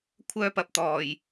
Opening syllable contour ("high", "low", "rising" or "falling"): high